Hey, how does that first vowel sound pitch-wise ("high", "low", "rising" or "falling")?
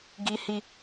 high